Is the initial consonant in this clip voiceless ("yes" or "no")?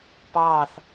yes